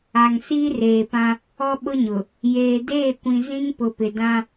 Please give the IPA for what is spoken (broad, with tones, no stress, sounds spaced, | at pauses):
a˨ ŋ s iː˦ r eː˨ p ã˦ | ɔ˦ ɓ ʊ˦ ɲ ʊ˨ | j eː˨ d eː˦˨ kʷ ĩ˨ z ĩ˦ ŋ p ʊ˨ p ɪ˨ d ã˦